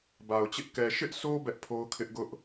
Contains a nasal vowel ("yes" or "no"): no